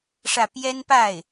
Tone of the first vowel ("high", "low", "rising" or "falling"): falling